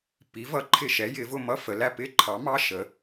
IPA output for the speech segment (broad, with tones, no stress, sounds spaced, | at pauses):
p i˩˥ v ʌ˩˥ ǃʰ ɪ˦˨ ʃ ɛ˩˥ j ɪ˩˧ v ʊ˦˨ m ʌ˧˥˧ f ə˩˧ l æ˦˨ p ɪ˦˨ ǃʰ ɑ˩˥ m ɑ˧˥˧ ʃ ə˩˧